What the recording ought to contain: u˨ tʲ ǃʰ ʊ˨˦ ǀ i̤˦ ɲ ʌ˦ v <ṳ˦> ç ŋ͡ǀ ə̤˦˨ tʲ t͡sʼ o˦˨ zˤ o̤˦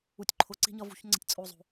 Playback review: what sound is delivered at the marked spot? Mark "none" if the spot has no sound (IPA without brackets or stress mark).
ṳ˦